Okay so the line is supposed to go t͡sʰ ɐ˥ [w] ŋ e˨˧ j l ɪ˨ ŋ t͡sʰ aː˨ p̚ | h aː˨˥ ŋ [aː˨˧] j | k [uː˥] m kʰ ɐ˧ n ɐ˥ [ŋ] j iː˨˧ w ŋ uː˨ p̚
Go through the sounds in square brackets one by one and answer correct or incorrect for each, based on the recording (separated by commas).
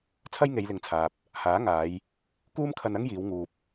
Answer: incorrect, correct, correct, correct